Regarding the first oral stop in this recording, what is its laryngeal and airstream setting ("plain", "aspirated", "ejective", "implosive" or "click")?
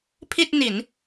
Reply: aspirated